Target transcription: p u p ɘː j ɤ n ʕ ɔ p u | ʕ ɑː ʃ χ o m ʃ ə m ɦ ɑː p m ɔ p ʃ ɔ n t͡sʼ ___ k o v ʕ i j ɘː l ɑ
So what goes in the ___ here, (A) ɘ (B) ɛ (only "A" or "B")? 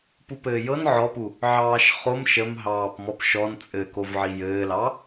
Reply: A